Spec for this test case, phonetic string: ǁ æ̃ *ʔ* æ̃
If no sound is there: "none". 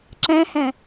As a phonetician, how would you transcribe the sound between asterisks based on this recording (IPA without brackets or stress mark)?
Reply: h